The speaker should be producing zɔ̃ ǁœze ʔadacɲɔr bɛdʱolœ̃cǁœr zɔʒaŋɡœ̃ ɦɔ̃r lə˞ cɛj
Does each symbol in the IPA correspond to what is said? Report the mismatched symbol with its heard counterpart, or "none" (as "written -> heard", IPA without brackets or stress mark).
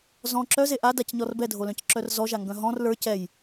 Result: none